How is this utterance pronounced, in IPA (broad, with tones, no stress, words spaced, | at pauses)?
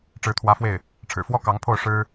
ʈ͡ʂɻ̩˧˥t̪ʰwä˧˥fwe˥˩ɪ̯ | ʈ͡ʂʰɻ̩˨˩fwɔ˥ kɑ˧˥ŋpʰo˥˩ʊ̯ ʂɻ̩˥